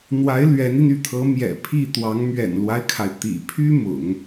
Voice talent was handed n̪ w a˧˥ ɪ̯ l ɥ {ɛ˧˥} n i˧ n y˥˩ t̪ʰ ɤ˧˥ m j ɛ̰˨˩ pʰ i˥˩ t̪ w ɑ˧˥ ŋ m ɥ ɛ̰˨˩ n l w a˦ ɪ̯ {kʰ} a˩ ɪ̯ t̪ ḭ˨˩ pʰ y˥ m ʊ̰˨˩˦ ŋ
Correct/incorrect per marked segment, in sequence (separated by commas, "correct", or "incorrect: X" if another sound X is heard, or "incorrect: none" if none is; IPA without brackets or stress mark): correct, correct